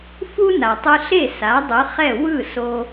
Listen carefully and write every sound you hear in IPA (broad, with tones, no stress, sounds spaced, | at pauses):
f u˥ n a˩ tˤ ɯ˧ ɬ e˥˩ s a˩˥ dˤ ɯ˩˥ χ ɛ˥˩ w ɯ˥˩ s o˧